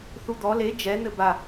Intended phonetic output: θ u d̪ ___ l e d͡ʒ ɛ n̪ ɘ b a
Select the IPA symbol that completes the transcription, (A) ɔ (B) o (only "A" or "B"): A